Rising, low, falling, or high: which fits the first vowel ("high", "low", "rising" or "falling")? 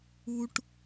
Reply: high